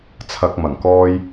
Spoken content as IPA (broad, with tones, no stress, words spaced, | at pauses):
t͡sʰɐ˧k̚ mɐ˨˩ŋkɔː˧j